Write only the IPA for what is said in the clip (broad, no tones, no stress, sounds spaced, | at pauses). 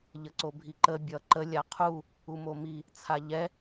ʎ ə ǀ o bʱ i ǃ ə bʲ ʌ ǃ ə lʲ a qʰ u | u m o m i | t͡sʰ a ʎ ɛ